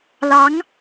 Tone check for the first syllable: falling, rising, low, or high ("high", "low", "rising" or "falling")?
rising